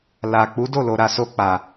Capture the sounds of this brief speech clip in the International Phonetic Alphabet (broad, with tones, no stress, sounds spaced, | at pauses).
l a˨ k͡p u˨˦ d o˦˨ l o˨ ɾ a˨ s o˧ k͡p a˨